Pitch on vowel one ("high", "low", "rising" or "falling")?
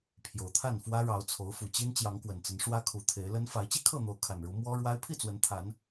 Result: low